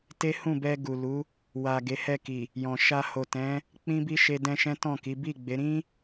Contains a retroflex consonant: no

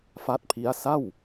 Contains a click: no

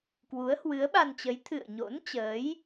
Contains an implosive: yes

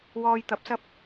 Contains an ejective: no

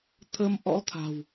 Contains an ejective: no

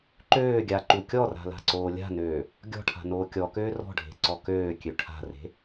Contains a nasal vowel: no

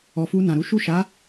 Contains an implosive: no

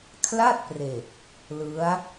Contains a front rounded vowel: no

